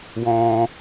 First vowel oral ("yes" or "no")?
no